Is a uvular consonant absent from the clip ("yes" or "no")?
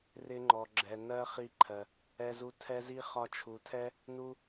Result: no